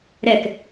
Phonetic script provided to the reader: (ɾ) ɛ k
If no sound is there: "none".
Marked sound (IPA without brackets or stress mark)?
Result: ɾ